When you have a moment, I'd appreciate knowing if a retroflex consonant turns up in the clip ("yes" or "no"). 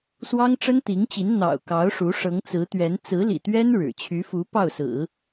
yes